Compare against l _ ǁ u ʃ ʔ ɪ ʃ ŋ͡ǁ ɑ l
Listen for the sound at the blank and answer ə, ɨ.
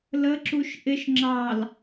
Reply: ə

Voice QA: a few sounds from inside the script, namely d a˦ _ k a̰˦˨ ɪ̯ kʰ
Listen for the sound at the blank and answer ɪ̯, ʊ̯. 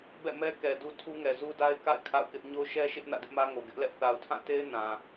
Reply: ɪ̯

